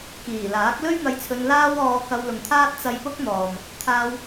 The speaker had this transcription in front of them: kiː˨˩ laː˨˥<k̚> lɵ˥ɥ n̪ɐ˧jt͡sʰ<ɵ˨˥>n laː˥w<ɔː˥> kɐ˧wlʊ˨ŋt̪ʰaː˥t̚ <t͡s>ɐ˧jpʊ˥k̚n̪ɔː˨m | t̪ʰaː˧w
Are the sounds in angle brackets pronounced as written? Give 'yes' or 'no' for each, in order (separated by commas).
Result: yes, no, no, yes